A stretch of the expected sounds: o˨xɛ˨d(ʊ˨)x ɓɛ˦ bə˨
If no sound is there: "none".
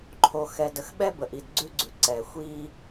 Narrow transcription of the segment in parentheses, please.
ə˨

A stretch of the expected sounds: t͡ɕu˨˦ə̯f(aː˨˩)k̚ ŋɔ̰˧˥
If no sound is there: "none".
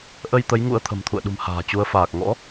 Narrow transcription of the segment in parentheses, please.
aː˨˩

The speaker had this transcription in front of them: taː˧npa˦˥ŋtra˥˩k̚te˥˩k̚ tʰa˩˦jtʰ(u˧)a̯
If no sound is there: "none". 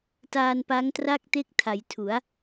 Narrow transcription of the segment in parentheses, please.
u˩˦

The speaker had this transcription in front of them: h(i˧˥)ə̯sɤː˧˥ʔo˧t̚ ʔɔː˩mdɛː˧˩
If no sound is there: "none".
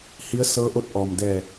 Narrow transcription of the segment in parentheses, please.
i˧˥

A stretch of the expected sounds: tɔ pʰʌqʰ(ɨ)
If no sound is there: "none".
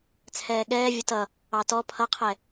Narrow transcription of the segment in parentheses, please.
ɛ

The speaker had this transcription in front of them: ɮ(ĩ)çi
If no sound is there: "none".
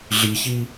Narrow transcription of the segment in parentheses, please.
i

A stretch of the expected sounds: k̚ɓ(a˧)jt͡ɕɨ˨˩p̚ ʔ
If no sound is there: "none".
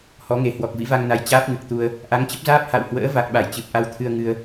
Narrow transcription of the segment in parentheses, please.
a˧˩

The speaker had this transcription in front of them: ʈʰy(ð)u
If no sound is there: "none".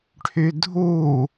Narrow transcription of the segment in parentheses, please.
dʱ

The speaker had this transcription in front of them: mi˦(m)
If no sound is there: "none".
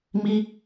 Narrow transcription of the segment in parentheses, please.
none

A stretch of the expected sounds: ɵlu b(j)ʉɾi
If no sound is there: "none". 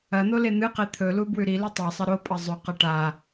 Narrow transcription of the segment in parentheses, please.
w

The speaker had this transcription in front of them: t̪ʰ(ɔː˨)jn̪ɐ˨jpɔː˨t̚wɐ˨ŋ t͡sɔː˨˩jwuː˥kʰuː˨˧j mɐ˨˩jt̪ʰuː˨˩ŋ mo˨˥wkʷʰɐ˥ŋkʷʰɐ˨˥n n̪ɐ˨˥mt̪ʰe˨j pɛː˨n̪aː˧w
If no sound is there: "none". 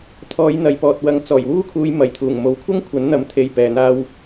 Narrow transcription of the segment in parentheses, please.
ɔː˨˧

